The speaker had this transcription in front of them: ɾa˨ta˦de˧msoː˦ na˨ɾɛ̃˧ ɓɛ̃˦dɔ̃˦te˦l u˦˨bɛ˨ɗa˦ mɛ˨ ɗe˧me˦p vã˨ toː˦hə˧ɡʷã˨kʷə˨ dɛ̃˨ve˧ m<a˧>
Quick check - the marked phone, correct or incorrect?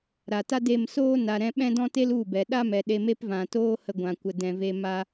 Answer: incorrect